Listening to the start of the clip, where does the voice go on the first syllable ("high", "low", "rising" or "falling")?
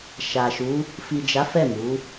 low